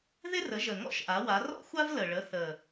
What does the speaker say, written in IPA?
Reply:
ð ɪ˥ r ə˩˥ ʒ ə˨˩ ŋ ɔ̰˥ ʃ ʔ a˩˥ w a˩˥ r ɔ̰˥ xʷ a˥ v l ə˨˩ ɭ ə˩˥ θ ə˨˩

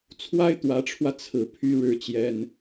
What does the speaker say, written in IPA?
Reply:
t͡sʰ w a˥ ɪ̯ t̪ w ä˧˥ ʈ͡ʂʰ w ä˧ t͡sʰ ɹ̩˨˩ pʰ y˥ ɻ ɻ̩˥ t͡ɕ j ɛ˥ n

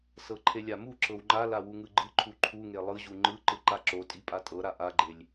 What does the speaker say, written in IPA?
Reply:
s ɤ ǃʰ e lʲ a m u ǁ ɤ w ŋ͡ǃ a l a w u ŋ ɯ ɡ͡ǃ ɯ ǃʰ u ǃʰ u ŋ e lˠ ɯ ʑ u ŋ͡ǃ ɯ ǃ ɯ ǃ a ǁ o tʼ i pʼ a tʼ ɤ ɾ a ʔ a ɡ͡ǃ e lʲ

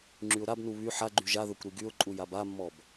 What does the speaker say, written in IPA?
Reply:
ŋ͡ǁ y ʊ̯ ɾ a b n u β y ħ a ɡ͡ǃ y ʒ a ð œ kʷ ɾ i ɡ y ʊ̯ ǃʼ u j a b a mː ɔ b

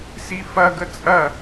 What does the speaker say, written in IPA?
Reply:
s i f ɐ ɡ ə t͡sʼ ɐ

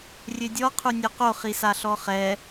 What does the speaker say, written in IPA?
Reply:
rʲ ø dʲ ɔ qʰ u nʲ ø q o χ i s a ɬ ɔ χ ɛ

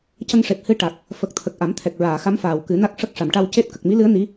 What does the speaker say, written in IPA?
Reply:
c ə˧ ŋ ʂ e˨˩ p̚ h ɨ˧ ʈ a˨˩ k̚ | f ə˨˩ k̚ t̪ʰ ə˨˩ k̚ ʔ a˨˩˦ m t̪ʰ ɛ˨˩ k̚ ɹ aː˨˩˨ x a˧˥ m f aː˨˩ w k ɨ˨˩˦ n a˦˥ k̚ ʂ ə˦˥ k̚ ʂ a˨˩˨ m ʈ a˧ w c e˦˥ t̚ k ə˨˩ k̚ m i˧˥ l ɨ˧˥ ə̯ n i˧˥

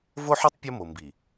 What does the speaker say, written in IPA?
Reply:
v o˦ ħ u˦ tˤ pʲ ɔ˦ m o˨ m b i˨

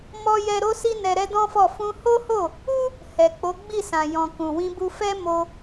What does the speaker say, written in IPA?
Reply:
m ɔ˦ j ɛ˦ ɾ o˧ s i˧ n ɛ˧ ɾ ɛ˦ d ɔ̃˦ f ɔ˦˨ f ũ˧ h o˦ h o˦˨ | u˦ | h ɛ˨ k͡p o˨˦ ɡ͡b i˦˨ s ã˨ j ɔ̃˨ k ũ˨ w ĩ˧ b u˧ f ɛ˦ m o˧

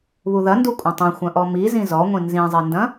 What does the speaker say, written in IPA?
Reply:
β u ð ɐ n d u kʷʼ ɐ̃ tˤ ũ xʷ ɐ̃ ʔ ɔ m i z ĩ z ɔ ŋʷ ĩ n z ĩ zˤ i n d ɐ̃

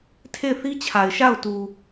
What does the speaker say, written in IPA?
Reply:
tʰ e˦˨ ɪ̯ θ i˦ t͡ɕʰ a˨ ɪ̯ ʃ a˦˨ ʊ̯ t u˨

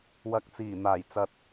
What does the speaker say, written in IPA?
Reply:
w ɐ˨ k̚ t͡s iː˨˩ n̪ aː˨˩ j t͡s ɐ˨ t̚

